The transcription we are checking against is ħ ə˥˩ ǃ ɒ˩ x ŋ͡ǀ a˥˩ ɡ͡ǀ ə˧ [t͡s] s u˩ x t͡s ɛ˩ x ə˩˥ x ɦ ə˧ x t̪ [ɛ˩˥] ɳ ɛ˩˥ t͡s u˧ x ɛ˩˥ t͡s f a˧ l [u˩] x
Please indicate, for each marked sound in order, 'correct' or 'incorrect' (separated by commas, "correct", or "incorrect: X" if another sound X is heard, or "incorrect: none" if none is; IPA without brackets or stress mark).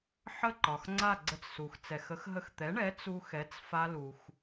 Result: correct, correct, correct